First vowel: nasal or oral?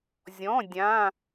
nasal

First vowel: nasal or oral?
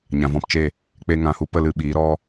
nasal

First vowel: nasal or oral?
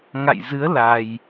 oral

